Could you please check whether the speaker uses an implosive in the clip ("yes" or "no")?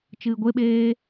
yes